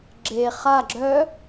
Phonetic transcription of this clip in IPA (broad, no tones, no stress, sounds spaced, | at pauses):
ɡ͡ǁ e χ a ɡ͡ǁ œ